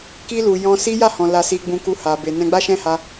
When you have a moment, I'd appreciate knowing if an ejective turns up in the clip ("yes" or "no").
no